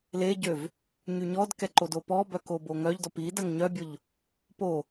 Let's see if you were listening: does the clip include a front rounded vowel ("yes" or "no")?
yes